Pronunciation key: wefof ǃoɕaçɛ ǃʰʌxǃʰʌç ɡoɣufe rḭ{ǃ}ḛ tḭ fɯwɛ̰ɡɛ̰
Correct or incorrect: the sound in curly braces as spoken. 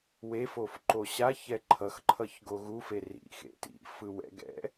incorrect: x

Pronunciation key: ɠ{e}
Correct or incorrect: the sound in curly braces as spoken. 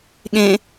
incorrect: ẽ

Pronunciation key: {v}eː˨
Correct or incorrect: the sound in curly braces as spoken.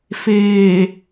incorrect: f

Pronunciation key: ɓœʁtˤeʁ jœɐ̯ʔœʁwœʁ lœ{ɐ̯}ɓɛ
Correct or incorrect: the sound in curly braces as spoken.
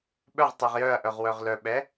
incorrect: none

